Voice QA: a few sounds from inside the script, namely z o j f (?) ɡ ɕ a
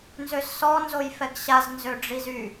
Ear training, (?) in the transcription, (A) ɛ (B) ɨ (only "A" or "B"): A